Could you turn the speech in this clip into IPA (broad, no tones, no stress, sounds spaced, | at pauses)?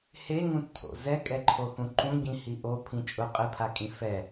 h e ŋ ũ t cʰ o̰ z ɛ kʼ ɛ ǃʰ o x ũ ǃ ũ ɟ ĩ h i ʔ o pʰ ĩ t͡ʃʼ ʊ qʼ ɪ pʰ a kʼ ĩ f ɛ